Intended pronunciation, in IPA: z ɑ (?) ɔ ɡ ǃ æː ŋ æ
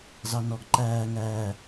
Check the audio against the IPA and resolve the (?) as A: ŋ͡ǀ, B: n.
B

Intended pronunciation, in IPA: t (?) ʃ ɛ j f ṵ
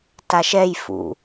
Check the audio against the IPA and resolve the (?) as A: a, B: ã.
A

